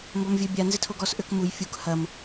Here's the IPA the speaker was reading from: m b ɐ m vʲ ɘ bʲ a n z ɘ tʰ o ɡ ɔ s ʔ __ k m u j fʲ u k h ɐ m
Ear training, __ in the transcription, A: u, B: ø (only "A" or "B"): B